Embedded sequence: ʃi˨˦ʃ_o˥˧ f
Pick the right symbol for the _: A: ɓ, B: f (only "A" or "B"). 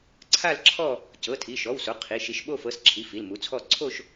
A